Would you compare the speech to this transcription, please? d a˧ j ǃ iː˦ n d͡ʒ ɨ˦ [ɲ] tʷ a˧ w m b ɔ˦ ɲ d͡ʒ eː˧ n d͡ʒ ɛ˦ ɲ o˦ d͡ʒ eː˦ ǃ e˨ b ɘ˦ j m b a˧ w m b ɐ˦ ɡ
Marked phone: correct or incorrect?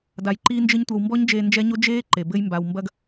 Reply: correct